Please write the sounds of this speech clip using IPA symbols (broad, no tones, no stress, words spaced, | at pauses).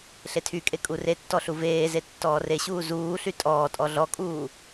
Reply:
ɬetʰykʼe kʼuretːɔ ɬuveːze tːɔːreɕuː zuːɬy tʼɔːtʼɔ ɮɔkʼuː